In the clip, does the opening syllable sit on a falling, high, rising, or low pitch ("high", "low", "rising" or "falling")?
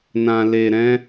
low